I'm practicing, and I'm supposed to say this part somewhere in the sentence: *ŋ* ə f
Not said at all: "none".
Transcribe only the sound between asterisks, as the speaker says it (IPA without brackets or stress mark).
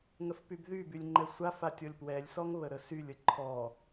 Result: ŋ